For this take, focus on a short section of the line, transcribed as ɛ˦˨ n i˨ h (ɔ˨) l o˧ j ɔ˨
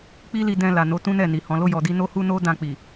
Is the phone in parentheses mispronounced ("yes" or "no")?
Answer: yes